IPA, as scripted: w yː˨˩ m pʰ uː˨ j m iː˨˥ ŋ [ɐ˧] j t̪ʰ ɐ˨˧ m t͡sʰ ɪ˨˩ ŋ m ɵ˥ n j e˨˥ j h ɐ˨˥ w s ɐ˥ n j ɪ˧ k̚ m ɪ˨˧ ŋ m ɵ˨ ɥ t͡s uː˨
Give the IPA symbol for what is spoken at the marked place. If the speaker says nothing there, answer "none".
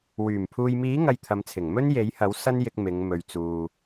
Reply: ɐ˧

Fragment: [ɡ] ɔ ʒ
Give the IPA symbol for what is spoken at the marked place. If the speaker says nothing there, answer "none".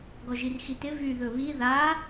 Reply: ɡ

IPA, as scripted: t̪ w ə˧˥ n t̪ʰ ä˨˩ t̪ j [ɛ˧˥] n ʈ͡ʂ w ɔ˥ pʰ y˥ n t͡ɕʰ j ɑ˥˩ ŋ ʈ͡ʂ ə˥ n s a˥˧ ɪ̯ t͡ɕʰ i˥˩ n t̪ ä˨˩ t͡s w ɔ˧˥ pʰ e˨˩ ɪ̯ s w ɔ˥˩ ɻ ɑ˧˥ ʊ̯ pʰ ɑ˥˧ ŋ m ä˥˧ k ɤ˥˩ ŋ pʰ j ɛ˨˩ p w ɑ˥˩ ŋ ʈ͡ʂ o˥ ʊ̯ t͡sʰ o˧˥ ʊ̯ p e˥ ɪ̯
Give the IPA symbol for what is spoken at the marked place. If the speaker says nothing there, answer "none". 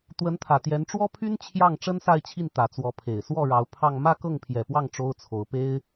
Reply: ɛ˧˥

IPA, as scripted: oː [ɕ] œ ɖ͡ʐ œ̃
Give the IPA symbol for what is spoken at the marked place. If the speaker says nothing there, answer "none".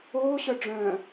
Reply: ɕ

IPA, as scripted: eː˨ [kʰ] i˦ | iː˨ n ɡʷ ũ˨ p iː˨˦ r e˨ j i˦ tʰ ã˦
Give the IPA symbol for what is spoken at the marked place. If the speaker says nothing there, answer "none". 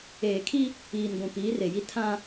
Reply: kʰ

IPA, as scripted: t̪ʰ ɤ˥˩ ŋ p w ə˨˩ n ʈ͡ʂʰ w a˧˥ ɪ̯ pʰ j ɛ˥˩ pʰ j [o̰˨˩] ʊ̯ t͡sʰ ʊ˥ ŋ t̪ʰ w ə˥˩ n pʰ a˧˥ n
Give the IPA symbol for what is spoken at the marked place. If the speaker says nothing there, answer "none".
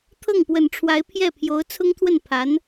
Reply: o˧˥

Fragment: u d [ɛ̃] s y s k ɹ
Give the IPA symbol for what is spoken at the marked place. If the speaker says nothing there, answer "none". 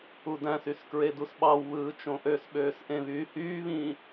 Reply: æ̃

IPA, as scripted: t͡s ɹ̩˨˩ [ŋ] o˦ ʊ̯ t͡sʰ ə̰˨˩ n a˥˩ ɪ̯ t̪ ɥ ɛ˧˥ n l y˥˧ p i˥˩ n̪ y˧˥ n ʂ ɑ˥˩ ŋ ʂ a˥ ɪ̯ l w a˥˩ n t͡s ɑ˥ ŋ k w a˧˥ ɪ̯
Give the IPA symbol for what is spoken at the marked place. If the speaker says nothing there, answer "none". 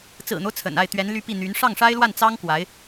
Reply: n̪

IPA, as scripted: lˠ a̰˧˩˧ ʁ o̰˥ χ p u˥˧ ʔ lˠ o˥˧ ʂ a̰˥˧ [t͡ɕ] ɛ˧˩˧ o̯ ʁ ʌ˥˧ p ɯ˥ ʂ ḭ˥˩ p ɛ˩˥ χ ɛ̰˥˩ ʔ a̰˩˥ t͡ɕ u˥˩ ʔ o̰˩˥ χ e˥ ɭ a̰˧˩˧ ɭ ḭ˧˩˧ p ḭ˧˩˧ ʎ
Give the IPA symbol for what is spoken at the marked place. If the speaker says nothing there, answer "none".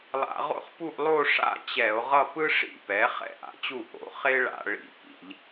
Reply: t͡ɕ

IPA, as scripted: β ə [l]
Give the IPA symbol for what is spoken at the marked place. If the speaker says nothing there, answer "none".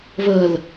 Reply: l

